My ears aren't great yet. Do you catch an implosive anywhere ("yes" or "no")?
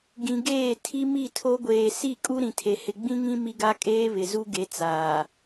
no